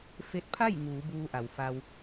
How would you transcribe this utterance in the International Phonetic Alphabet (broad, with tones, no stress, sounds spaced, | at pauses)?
f e˧ t̚ pʰ a˥˨ j ŋ uː˩˧ b uː˧ ʔ a˩ w f a˧ w